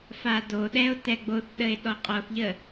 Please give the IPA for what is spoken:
f a d o ɗ ɛ o̯ t ɛ ɡ͡b o θ ɗ ə e̯ ɗ ɔ qʼ ɔ θ ʎ ə

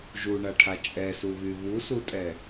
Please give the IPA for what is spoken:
ʒ u ɳ a ʈʰ a t͡ʃʼ ɛ s u β y β u s u tʼ ɛ

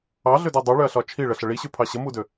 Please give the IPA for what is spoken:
ɑ ɮ ø d ø dˤ ʉ ɭ ø ɐ̯ ɬ ɒ t͡ʃʰ i ɭ ə ɬ ə ɭ i ɕ ʉ pʰ ɑ ɕ ə m u d ø

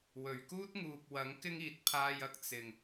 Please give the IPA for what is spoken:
w ɵ˨˩ ɥ k uː˥ t̚ ŋ uː˨ p̚ w ɐ˨˥ ŋ k ɪ˥ ŋ iː˨ t̚ pʰ aː˧ j ɐ˧ k̚ t͡s ɪ˨ ŋ

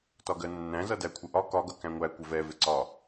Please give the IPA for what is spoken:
t ɒ ɡ ɜ nː æ̃ z ʌ d æ kʷʰ ɪ ʔ ɒ k ɒ ɡ ʌ k æ̃ ŋʷ æ kʷ ɪ v ɛ v ɪ ǀ ɒ

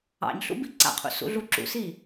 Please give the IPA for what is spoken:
ɑ̰ ɲ ɬ ṵ b i ǀ a̰ qʰ ṵ s ṵ ɮ u ǁ ṵ s i

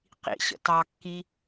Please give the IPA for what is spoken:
q ḭ ɕ ə̰ t ɑ kː i

